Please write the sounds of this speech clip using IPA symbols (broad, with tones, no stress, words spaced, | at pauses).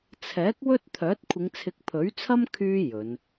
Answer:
t͡sʰɛː˨˥k̚ wɵ˥t̚t̪ʰœː˨˥t̚ kʷʰɪ˨˧ŋt͡sʰɪ˨˥k̚ pʰɵ˨˥ɥt͡sʰɐ˥m kʰyː˧ jɵ˨˧n